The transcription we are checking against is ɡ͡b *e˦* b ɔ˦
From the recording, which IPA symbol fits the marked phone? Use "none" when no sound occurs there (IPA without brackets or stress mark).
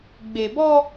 e˨